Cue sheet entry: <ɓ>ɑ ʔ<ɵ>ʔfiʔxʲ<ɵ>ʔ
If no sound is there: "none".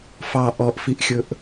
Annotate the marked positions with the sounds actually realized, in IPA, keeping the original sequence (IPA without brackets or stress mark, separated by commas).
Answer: f, ɔ, ɵ